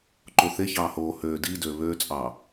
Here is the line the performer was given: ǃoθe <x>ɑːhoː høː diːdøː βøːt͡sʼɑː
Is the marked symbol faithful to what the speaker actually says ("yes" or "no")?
no